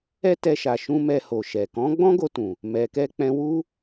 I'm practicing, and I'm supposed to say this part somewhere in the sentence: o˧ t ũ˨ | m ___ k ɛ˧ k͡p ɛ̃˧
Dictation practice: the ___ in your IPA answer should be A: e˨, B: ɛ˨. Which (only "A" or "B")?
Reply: B